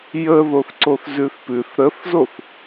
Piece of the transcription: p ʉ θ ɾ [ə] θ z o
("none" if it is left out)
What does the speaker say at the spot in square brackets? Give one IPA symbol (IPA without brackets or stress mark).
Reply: ə